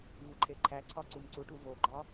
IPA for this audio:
v u ǃʰ e ǃʰ æ ǀʰ ɒ ǀ u m ǀ u ʈ u v o ɡ͡ǃ ɒ

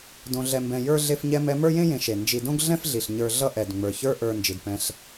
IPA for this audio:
d õ˨ ɮ ɛ˨ m b ɛ̃˨ j ə˞˥ ɮ e˦ f ɲ ɛ˦ m ɛ˦ m ə˞˥ j ẽ˥ j ẽ˨ ʃ e˩ n d͡ʒ i˨ d õ˦ ɡ ɮ ɛ̃˥ f ɮ i˩ ɬ ɲ ə˞˨ ɮ ʌ˦ ʔ ɛ˩ d ŋ͡m ə˞˩ ç ə˞˦ ʔ ə˞˨ n d͡ʒ i˩ d p ɛ̃˨ ɬ

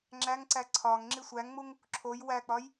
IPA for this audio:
ŋ͡ǁ æ ŋ ǀ æ ǀʰ ɒ ŋ ŋ͡ǁ i sʷ æ ŋ ŋ͡m u ŋ | ǁʰ o j w æ k͡p ɒ j

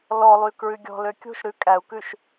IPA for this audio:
l ɔ lˠ y k ɹ ʉ ɡʲ ɔ̤ l ø kʲ o̤ ʃ ɾ ʉ kʼ æ u̯ k ʉ ʃ

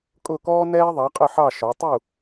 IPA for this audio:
kʼ ʊ˥˩ k ɔː˥ n ɛː˥ ðˤ ɑ˩˥ qʼ ə˥˩ ħ ɑ˥˩ ʃ ɔ˩˥ tˤ u˥˩

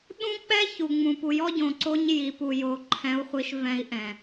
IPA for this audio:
ɗ ũ˦ k͡p ɛ˦ ç u˨ ŋ͡m ũ˨ p u˨ j ɔ˦ ɟ õ˨ ǀ o˦ ɲ j i˨ p u˨ j o˨ ǃʰ ɛ̃˨˦ u̯ χʷ i˨ ʃ v ɛ̃˦ i̯ ʔ ɛ̃˨

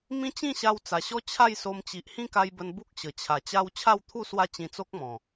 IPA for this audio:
m ĩ˦ t͡ɕ ĩ˥˧ ɕ a˧ w t͡s a˨˩ ɕ ɔ˦ t͡ɕʰ a˥˧ j s o˧ m t͡ɕ i˨ ʔ h ĩ˦ k a˧ j b ə˧ n b u˦ k̚ ɕ ə˨˩ t͡ɕʰ a˨˩ t͡ɕ a˦ w t͡ɕʰ a˥˧ w t̪ʰ u˥˧ s w a˦ t͡ɕ ĩ˧ t͡s o˦ k̚ m ɔ̃˨˩

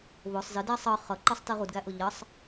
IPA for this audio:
β ʊ sˤ z ɪ d æ sˤ ʌ χ ʌ ǃ ʌ sˤ t i ʁ u d ɡ æ ʔ ʊ ʎ ʌ sˤ

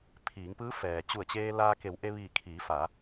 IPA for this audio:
pʰ iː˩˧ ŋ p ɯː˧˥ f ɛː˩ t͡ɕ u˧˩ ə̯ t͡ɕ eː˧ l aː˧ k e˩˧ w ʔ e˧ ʋ iː˧˩ kʰ iː˩˧ f a˩˧

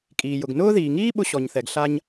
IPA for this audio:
kʼ iː˩ j ʊ˩ ɡ n ʊː˥ ð iː˩ ŋ iː˥ ɓ ʊ˧ ɕ ɔ˩ ɲ θ ɛ˩ ɡ ɬ a˧ ɲ

